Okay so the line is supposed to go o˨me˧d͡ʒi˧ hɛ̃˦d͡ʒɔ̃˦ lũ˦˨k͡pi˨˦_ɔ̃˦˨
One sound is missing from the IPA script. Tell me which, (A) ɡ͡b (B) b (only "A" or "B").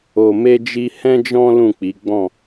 A